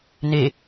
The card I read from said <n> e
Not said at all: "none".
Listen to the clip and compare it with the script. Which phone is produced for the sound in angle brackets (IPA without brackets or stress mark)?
n